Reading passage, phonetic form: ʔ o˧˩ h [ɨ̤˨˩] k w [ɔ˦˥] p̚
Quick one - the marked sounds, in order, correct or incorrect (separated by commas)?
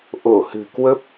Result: correct, incorrect